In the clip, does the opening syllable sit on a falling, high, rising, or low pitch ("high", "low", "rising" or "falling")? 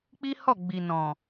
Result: high